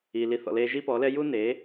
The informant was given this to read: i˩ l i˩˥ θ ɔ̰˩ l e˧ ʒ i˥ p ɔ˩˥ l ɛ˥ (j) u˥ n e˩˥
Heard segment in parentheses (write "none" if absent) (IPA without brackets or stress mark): j